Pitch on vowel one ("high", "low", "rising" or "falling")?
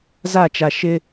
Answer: falling